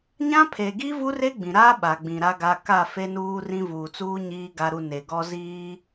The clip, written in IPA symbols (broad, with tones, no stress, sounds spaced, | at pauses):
ɲ ã˦ pʰ e˨ ɡ i˦ v u˦ r e˦ ɡ͡b ĩ˨ ɾ a˦ ɓ a˨ ɡ͡b ĩ˨ ɾ a˦ ɡ a˦ k a˦˨ f e˦ n uː˦ r ĩ˦ v uː˨ t͡s uː˦ ɲ iː˦ ɡ a˦ ɾ u˦ n e˨ ɡ ɔ˦ z iː˦